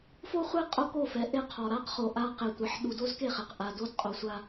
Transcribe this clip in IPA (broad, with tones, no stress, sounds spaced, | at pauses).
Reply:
f o˦ χʷ e˦ qʼ o˦ k o˦˨ f ɛ˨ ʔ e˦ qʰ ɔ˨ ɾ a˦ q χ o˨ ʔ a˦ q e˨ tʷ ɛ˨ ħ ɗ u˨ d o˦ z k e˦˨ χ ɛ˨ q ʔ a˨ d o˦ d qʼ o˨ sʷ a˦